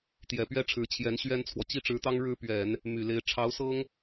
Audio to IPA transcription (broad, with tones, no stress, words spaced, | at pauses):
t̪jɛ˨˩ pɥɛ˥ʈ͡ʂʰɻ̩˧˥ t͡ɕʰjɛ˧˥nɕɥɛ˥nt͡sʰwɔ˨ t͡ɕi˥˩ʈ͡ʂɻ̩˧˥t̪ɑ˥ŋ ɻɻ̩˥pɥɛ˨˩˦n | my˨˩le˧˥ɪ̯ ʈ͡ʂʰɑ˧˥ʊ̯sɤ˥ŋ